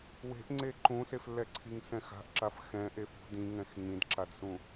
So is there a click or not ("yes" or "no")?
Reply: yes